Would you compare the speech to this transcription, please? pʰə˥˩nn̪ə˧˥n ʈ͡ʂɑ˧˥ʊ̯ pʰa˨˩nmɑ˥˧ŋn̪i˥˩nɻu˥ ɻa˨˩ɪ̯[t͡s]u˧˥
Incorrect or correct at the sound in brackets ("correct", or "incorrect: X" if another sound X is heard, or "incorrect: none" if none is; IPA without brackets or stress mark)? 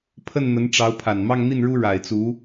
correct